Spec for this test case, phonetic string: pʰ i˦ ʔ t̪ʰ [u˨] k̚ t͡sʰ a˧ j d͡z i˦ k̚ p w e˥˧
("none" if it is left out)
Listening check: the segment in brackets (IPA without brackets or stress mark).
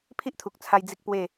u˨